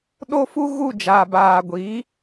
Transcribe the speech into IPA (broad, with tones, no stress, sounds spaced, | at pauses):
ɗ o˦ f u˦ ɣ u˦˨ d͡ʒ aː˨ b aː˨ ɡʷ iː˨˦